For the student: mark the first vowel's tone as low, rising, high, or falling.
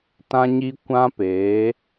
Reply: high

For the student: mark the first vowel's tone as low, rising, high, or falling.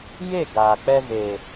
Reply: falling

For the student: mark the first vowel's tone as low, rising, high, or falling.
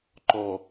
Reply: low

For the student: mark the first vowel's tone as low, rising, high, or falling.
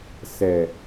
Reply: low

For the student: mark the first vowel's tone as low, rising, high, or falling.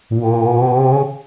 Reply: rising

